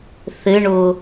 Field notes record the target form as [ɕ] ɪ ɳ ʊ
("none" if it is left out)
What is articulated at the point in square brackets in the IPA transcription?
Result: θ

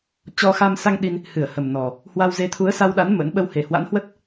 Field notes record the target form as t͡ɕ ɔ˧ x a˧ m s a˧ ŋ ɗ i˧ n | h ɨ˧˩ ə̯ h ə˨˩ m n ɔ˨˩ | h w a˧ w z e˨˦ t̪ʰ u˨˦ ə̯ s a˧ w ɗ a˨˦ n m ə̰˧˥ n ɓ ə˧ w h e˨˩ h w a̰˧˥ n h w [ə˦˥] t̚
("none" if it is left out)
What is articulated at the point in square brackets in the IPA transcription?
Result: ə˦˥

